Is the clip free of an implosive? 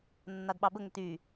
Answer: no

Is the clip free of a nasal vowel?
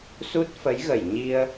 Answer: yes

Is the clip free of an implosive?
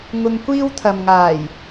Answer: yes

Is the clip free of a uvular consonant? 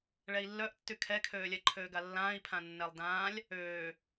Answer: yes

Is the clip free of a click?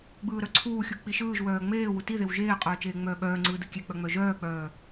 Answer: no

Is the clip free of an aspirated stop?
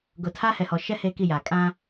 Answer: no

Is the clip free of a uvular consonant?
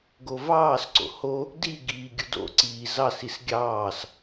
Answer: yes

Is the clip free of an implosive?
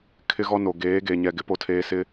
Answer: yes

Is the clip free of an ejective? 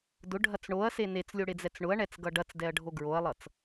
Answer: yes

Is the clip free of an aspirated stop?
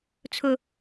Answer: no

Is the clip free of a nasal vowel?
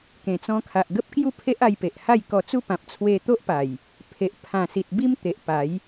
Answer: no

